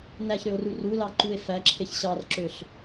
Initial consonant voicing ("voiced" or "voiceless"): voiced